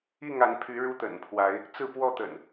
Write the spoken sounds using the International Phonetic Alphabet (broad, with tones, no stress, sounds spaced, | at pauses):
i˥˨ ŋ a˨˦ n pʰ y˨˦ ɻ u˦ t̪ ə̰˨˩ n pʰ w a˨˦ ɪ̯ | t͡s ɹ̩˥˨ p w ɔ˥˨ t̪ ə̰˨˩ n